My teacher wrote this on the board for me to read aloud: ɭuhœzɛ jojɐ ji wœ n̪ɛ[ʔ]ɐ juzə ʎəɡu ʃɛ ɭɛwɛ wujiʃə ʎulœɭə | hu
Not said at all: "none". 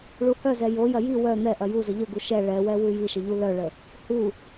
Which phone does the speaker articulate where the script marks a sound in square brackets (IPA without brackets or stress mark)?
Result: ʔ